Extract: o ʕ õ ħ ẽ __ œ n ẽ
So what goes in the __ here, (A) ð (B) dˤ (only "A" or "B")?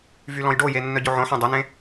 B